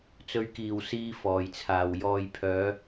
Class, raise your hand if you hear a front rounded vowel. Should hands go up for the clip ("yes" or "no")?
yes